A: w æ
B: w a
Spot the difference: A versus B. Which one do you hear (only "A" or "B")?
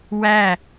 A